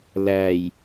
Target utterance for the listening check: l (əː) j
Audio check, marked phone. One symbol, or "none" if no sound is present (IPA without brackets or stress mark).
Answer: æː